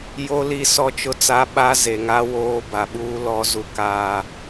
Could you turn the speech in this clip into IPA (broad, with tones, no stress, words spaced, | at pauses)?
jo˦li˦˨ sɔ˦t͡ʃʊ˦t͡sa˦ ɓa˦ ze˨ŋa˦ woː˦ ba˨ɓuː˦ lɔ˦ zu˦kaː˦